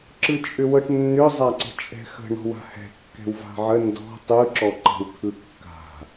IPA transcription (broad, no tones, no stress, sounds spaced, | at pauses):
ǁ ɯ t͡ʃʼ ʏ w ɤ ʈ nː ʏ zˤ a ǀ ə̤ t͡ʃʼ ɛ̤ x ə̤ ɳ ɔ̤ w a̤ h ɛ̤ kː ɛ̤ w v a̤ ʕ ə n d ɔ̤ tˤ ɯ ǁ ɔ ǃ ə̤ w t̪ʰ ɯ kː a̤